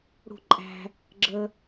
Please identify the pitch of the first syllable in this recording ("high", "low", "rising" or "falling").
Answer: falling